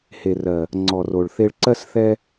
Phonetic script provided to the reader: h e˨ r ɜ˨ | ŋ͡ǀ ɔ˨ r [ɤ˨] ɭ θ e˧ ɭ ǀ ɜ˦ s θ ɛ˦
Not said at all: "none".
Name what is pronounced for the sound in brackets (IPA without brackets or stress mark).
o˨